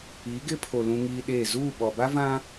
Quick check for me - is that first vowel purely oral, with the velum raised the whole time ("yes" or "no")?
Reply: yes